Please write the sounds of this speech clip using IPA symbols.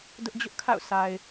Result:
d ʊ˦ ʔ d͡ʑ ʊ˦ ʔ kʰ a̰˦˨ ʊ̯ s a˨ ɪ̯

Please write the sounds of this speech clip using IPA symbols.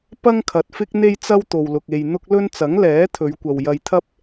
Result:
p ɐ˥ ŋ kʰ ɐ˨ t̚ f ɪ˥ k̚ n̪ e˧ j t͡s ɐ˧ w t̪ o˨ w l ʊ˨ k̚ e˨ j n̪ ʊ˧ k̚ l ɵ˧ n t͡s ɐ˨˥ ŋ l ɛː˨˥ t̪ʰ ɵ˨˧ ɥ kʷ ɐ˨ w j ɐ˧ j t̪ʰ ɐ˥ p̚

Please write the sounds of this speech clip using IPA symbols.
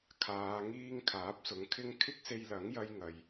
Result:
kʰ aː˨˧ ŋ iː˥ ŋ kʰ aː˨˥ p̚ s ʊ˨˥ ŋ kʰ ɪ˥ ŋ kʰ ɪ˥ k̚ s e˧ j l ɐ˨˥ ŋ j ɐ˥ j ŋ ɐ˨ j

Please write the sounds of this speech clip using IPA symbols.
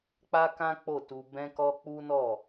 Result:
k͡p a˦ k ã˦ k͡p o˦˨ t u˧ b ɛ̃˧ k ɔ˧ k͡p u˦ n ɔ˦˨

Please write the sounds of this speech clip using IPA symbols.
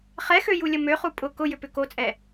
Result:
χ ɛ x ø j u lʲ ə m ø χ u pʼ ʊ k ʊ j ʏ p ʏ k o t͡sʼ ɛ

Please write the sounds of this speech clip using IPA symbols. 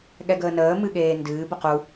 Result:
ɠ ɛ ɡ əː n əː m ɨ ɠ eː n d ɨː b ə q u

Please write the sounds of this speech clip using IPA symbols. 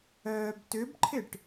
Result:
œː b t ʏ b ǃʰ ɪ ʈ

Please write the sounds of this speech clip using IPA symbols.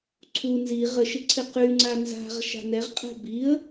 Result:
ǀʰ u n z i ʁ ə ʃ ɪ ǀʰ ɪ q y ŋ͡ǀ a n z a̤ ʁ ʃ a̤ n ɛ ʁ qʼ ɛ̤ b i ə̯

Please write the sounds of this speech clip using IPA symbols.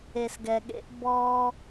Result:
e˨ s ɡ ɛ˨ ɠ ḛ˦ ʔ b ɔ˦

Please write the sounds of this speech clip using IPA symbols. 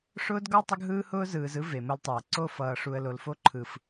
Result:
ʂ ʊː˦ d ɡ ɔ˦ tˤ ʊ˦ ɡ ɦ ɯː˦ h ʊː˦ z ɯː˨ z ɯ˦ v e˨ m ʊ˦ l tˤ ʊː˨ ǀ o˦˨ f ʌː˨ ʂ u˨ ə̯ l o˨ l f o˦ ǃʰ ɯ˨ f

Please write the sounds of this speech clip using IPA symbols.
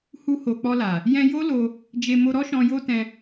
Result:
h u˧ h o˨ k͡p ɔ˧ l a˨ | j ɛ̃˧ j o˦ l o˧ | d͡ʒ e˨ m o˧ ɾ ɔ˦ ʃ ɔ̃˧ j o˧ t ɛ̃˧

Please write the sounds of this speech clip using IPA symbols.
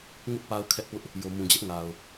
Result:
ŋ ʊ˦ ʔ p a˦ ʊ̯ kʰ ɛ˦ ʔ p ʊ˦ ʔ | j o˨ m ũ˨ d͡ʑ ɛ˦ ʔ ŋ a˨ ʊ̯

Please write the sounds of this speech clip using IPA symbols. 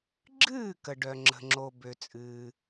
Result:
ɡ͡ǁ ɨː˥˩ k ə˩ ɖ œ˩ ŋ͡ǁ ə̤˩ ŋ͡ǁ o˩ b ø˩ t͡sʼ ɨː˩

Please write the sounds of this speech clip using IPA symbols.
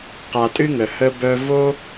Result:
q a˨ tʼ ɨ˥ ŋ ə˩ h ə˦ b œ˦ v o˥

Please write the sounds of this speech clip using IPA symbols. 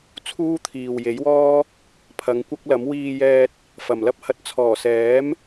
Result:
t͡sʰ uː˥ t̪ʰ iː˨ w j e˨˥ j w ɔː˥ | pʰ ɐ˨˧ ŋ kʷ ɐ˥ k̚ l ɐ˨˥ m w iː˧ j ɛː˧ t̚ | f ɐ˨ m l ɐ˥ p̚ h ɐ˧ t̚ t͡sʰ ɔː˨˩ s ɛː˨˥ m

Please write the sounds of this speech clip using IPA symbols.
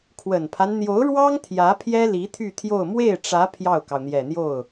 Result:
kʰ w ə˨˩ n pʰ a˦ n n̪ j o˧˥ ʊ̯ ɻ w ɑ˥ ŋ t̪ʰ j ä˧˥ pʰ j ɛ˥ l i˧˥ t̪ʰ y˥˧ t̪ʰ j o˥˧ ʊ̯ m w e˥˩ ɪ̯ ʈ͡ʂ ä˧˥ pʰ j ɑ˥˩ ʊ̯ k ɑ˩ ʊ̯ n̪ j ɛ˨˩ n̪ j o˥˩ ʊ̯

